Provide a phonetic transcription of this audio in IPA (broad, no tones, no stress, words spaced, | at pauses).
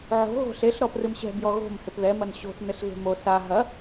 ʕo̤ ɣo̤ɬeɬ ɾɔprɨmɕɛ̤ bjɔɣo̤m hepðɛ mɐnɕo̤θ nɘɬɣe̤mo sa ɦɐ